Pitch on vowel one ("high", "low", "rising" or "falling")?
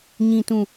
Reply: low